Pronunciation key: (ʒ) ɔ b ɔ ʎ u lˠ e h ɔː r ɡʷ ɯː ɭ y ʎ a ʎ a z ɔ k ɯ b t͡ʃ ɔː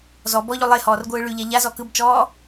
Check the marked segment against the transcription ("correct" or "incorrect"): incorrect